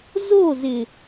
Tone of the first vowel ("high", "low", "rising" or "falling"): falling